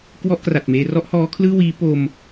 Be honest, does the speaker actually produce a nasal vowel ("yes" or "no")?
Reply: no